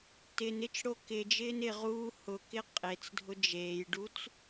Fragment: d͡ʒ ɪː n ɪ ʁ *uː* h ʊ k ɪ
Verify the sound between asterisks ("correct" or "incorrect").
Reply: correct